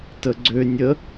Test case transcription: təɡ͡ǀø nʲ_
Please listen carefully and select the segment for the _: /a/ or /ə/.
ə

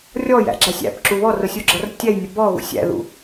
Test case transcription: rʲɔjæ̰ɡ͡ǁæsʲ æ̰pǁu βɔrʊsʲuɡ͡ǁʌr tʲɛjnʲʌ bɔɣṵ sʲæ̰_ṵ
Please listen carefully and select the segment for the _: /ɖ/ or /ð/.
ð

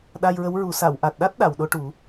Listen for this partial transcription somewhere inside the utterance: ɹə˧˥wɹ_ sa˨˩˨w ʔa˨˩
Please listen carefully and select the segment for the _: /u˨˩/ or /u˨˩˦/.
u˨˩˦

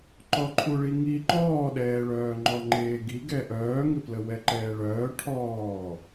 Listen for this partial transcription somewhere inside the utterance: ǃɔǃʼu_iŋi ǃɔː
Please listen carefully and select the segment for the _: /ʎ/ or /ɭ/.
ɭ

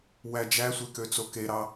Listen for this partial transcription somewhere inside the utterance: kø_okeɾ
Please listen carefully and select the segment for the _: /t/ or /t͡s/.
t͡s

